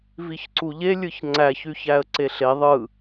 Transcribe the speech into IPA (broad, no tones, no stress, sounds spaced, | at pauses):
v i ç ǀ u ʎ e lʲ ɯ ç ŋ͡ǀ æ ç y ç æ ə̯ ǀ e ɬ e ðˤ ɯ